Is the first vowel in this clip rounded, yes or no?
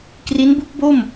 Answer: no